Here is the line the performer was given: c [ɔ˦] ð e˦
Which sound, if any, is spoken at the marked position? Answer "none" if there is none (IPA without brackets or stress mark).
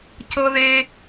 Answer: ɤ˦